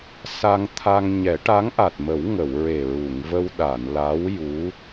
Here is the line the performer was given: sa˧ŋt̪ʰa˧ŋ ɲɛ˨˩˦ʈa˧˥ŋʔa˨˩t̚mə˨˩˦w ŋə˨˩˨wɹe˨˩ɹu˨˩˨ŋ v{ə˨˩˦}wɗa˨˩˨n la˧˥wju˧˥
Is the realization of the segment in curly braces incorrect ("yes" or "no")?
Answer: yes